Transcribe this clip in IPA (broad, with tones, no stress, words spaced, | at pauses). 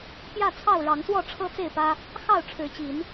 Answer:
pjä˥˨t͡sʰɑ˥˨ʊ̯ ɻɑ˨˦ŋswɔ˥˨ʈ͡ʂʰɤ˦ t͡se˥˨ɪ̯pä˦ | xɑ˥˨ʊ̯ʈ͡ʂʰɻ̩˨˦t͡ɕi˨˦n